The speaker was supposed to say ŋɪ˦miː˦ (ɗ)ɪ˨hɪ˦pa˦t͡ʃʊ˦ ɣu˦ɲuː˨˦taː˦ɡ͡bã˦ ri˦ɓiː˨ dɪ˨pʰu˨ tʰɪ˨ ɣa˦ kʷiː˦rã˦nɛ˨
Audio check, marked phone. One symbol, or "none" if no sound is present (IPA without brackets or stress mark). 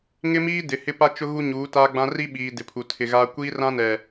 d